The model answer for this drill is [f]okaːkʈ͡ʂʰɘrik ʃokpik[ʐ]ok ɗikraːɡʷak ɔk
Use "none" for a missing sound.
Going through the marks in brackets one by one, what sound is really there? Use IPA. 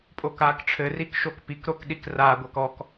pʼ, ɾ

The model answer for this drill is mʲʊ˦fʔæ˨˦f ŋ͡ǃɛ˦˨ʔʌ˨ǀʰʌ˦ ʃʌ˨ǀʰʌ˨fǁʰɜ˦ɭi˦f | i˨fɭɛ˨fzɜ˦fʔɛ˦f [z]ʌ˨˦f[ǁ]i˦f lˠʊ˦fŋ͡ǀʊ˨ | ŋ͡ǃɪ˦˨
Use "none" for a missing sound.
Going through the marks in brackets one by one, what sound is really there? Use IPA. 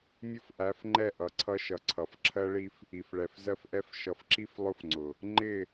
ʃ, ǁ

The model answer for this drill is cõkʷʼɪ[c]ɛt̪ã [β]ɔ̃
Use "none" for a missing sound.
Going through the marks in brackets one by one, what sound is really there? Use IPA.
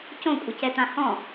c, h

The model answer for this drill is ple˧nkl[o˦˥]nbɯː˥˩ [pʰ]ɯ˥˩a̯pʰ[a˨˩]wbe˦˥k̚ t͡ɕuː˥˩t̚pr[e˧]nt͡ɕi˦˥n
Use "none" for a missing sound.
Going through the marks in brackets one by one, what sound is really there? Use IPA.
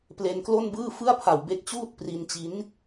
o˥˩, f, a˨˩, i˧

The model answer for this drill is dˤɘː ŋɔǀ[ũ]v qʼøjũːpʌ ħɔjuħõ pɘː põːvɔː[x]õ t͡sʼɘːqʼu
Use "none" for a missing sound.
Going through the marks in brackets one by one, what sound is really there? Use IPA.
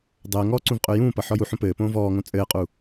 ũ, ŋ

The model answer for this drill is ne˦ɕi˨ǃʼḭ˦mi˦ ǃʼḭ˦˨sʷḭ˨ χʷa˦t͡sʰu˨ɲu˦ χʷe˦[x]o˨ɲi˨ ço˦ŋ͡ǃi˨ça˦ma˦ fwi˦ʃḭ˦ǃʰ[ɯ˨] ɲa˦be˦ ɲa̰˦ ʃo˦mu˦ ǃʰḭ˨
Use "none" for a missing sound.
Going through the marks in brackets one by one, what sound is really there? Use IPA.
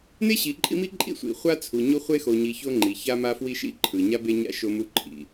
x, ɯ˨

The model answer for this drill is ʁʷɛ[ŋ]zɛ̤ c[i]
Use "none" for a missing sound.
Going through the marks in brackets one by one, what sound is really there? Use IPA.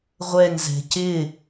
ŋ, ɪ

